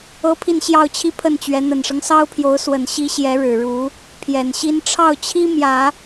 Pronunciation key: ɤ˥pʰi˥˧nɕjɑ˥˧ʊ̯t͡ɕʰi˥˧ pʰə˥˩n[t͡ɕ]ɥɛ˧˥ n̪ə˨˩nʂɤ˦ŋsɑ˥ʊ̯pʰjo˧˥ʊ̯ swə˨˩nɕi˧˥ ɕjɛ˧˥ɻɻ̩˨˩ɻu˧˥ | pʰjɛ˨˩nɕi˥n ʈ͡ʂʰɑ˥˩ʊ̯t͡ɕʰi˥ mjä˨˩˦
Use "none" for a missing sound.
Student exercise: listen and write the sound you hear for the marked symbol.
t͡ɕ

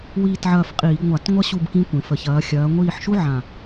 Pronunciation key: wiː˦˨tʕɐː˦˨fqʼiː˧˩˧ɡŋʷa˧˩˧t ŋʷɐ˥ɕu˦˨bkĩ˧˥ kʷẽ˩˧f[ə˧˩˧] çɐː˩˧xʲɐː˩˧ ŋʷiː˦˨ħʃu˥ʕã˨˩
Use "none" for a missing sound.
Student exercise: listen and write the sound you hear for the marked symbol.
ə˨˩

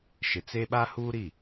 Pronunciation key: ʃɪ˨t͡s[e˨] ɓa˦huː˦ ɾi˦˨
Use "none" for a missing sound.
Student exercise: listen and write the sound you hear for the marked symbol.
e˦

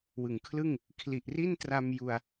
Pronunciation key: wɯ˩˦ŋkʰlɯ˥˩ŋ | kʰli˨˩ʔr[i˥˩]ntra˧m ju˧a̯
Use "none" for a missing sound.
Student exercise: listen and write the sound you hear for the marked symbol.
i˥˩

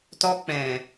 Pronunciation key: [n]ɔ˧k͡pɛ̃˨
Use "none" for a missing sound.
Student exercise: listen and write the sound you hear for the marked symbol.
t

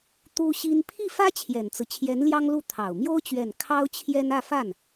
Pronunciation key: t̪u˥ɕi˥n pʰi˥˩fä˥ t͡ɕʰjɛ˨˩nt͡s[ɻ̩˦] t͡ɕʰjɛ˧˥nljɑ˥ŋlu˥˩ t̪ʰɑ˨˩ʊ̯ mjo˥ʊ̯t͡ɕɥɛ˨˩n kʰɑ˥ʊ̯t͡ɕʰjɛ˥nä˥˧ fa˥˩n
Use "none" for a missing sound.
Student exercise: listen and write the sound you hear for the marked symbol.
ɹ̩˦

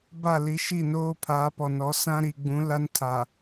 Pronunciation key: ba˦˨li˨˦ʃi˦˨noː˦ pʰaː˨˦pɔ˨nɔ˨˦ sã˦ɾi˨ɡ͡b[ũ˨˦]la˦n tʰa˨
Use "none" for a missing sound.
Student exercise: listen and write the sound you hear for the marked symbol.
ũ˨˦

